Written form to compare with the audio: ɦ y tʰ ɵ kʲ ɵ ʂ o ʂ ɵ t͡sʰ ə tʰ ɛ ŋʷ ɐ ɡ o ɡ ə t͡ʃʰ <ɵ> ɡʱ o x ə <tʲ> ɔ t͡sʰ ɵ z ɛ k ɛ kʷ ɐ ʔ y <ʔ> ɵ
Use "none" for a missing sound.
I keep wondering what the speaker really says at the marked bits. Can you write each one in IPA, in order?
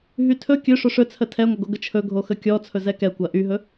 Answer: ɵ, kʲ, ɦ

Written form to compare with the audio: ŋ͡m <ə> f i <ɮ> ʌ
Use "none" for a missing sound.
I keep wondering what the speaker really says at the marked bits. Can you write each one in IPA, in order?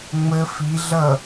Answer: ə, ɮ

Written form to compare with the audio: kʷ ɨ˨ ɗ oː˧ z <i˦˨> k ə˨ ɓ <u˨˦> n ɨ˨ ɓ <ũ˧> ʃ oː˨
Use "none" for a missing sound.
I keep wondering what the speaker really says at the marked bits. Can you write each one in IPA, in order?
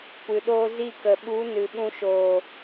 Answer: i˦˨, u˨˦, ũ˧

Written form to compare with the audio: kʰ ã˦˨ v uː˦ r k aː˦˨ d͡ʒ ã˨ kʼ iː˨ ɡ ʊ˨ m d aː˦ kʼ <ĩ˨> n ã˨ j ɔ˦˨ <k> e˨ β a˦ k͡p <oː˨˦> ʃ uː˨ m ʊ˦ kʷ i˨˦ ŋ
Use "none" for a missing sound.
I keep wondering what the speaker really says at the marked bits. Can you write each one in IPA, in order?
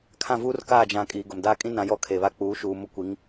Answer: ĩ˦, kʰ, uː˨˦

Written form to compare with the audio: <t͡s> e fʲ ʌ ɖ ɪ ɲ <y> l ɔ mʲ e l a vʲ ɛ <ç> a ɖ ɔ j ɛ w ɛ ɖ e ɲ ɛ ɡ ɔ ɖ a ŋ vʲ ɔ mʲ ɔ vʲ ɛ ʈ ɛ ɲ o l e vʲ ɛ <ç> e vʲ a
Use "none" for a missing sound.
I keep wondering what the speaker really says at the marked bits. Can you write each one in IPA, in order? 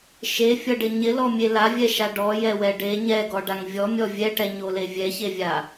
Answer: ʃ, ɪ, ʃ, ç

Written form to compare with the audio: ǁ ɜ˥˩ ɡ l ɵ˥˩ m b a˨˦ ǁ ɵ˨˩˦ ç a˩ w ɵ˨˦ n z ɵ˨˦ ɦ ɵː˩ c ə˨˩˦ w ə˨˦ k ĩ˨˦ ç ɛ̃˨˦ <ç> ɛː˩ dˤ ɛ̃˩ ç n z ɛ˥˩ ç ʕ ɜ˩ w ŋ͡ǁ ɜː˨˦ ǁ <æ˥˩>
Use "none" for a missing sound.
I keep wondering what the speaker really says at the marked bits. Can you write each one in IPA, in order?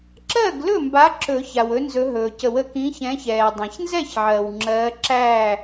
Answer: ç, æː˥˩

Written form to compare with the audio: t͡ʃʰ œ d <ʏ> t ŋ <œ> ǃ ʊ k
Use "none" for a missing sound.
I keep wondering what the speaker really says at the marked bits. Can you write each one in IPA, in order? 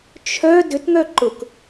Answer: ʏ, œ

